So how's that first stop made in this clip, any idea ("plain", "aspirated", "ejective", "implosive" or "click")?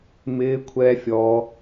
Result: aspirated